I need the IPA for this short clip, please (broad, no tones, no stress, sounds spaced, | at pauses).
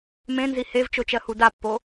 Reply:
m ẽ n z i h e v t͡ʃ o t͡ʃ ɜ h u d a pː o